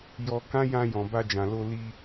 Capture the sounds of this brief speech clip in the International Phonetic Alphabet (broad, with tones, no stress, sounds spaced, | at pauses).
j ɔ˧ k ã˦ j ã˧ j ɔ̃˨ b a˧ d͡ʒ ã˨ l o˧ l i˧